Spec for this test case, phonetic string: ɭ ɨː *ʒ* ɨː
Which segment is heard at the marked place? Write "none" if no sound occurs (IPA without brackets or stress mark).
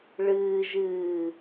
ʒ